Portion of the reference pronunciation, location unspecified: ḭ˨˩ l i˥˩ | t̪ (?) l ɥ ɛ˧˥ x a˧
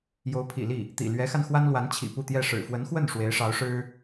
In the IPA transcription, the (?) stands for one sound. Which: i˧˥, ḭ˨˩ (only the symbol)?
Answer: ḭ˨˩